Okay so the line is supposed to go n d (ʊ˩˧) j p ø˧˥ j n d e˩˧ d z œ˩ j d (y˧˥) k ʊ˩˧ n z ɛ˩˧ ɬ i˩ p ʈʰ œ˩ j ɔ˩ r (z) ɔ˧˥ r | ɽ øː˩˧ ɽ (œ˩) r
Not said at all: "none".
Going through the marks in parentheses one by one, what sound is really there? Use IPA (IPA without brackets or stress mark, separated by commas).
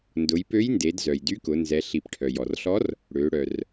ʊ˩˧, y˧˥, ɬ, œ˩